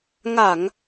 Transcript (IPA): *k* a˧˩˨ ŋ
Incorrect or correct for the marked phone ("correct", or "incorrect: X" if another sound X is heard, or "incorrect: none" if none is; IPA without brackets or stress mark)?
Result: incorrect: ŋ